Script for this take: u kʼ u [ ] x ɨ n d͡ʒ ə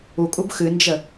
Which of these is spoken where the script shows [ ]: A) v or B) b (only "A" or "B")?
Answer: B